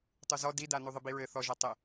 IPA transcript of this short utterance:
tˤ u z ɔ d i d a n u ðˤ ɘ b i ɹ ɘ θ ɔ ʒ a tˤ ɘ

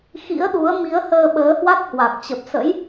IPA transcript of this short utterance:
x ḭ˧˥ ə̯ ɗ u˨˦ ə̯ m i˨˦ ə̯ h əː˧ ɓ əː˨˦ h w a˦˥ t̚ h w a˨˩ k̚ t͡ɕ ə˨˩ p̚ s ə̰˧˥ j

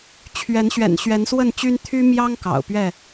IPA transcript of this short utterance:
t͡ɕʰ ɥ ɛ˨˦ n ɕ ɥ ɛ̰˨˩ n ɕ ɥ ɛ˨˦ n s w ə˥˨ n t͡ɕ y˦ n t̪ʰ y˦ m j ɑ˦ ŋ k ɑ̰˨˩ ʊ̯ p ɥ ɛ˥˨

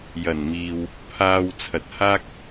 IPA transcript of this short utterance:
j ɐ˨˩ n m iː˨ w | pʰ aː˧ w t͡sʰ ɐ˨ t̚ h aː˥ k̚

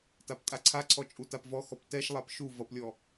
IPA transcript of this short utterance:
t a p tʼ a ǀʰ a ǀʰ ɔ t͡ʃʼ u t a p v ɔ x ɔ p t ɛ ʃ lˠ a p ʃ u v ʌ p lʲ ɔ

